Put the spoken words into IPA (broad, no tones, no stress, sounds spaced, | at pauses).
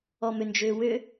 ɔ m ʏ n d͡ʒ ʏː w ʏ